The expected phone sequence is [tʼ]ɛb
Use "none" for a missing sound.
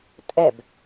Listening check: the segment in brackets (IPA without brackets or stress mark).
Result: tʼ